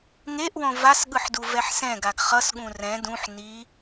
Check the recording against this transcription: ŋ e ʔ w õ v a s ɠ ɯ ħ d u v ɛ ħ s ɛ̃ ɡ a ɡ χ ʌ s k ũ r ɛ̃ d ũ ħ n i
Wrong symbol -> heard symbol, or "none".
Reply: k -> ɠ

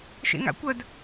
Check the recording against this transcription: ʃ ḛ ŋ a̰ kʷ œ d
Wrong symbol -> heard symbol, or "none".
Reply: none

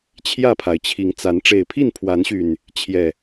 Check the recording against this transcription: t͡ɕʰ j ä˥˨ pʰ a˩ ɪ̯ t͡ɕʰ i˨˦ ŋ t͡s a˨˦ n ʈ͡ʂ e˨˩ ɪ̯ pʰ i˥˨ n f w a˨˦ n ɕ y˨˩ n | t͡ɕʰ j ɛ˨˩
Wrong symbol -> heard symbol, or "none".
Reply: f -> pʰ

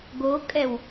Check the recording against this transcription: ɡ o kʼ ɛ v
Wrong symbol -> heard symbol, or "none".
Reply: v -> w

